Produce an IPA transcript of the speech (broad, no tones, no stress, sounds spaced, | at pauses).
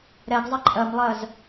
ɾ ɛ ɡ zˤ ʌ ǃʼ ɜ m lˠ ɜ z